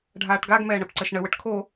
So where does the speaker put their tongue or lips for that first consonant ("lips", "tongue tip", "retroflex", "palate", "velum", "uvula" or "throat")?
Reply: retroflex